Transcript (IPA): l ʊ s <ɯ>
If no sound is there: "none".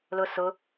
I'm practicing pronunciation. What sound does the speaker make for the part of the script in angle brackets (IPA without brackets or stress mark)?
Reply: ʊ